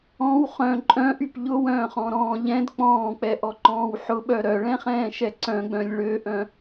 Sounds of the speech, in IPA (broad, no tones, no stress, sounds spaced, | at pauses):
ɔ̃ w χ œ̃ ǃʼ œ̃ ʔ y p ʎ ʊ w œ̃ː χ ɔ̃ ɾ ɔ̃ː ʎ ɛ̃ d k͡p ɔ̃ː k͡p ɛ ʔ ɔ ǃ ɔ̃ː w ħ ʊ ɓ œ ɾ œ ɭ ɛ̃ χ ɛ̃ː ʃ ɛ ǀ œ̃ ɡ͡b œ̃ lʲ ɭ ø ʔ œ̃